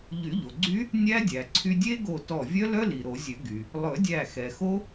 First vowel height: high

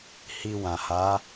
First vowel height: high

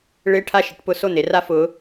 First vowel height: high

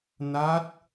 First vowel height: low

